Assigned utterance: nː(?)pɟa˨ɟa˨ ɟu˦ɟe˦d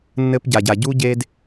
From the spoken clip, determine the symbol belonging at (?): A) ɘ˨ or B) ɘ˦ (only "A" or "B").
B